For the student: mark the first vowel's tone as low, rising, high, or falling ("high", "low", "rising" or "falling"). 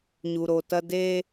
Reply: low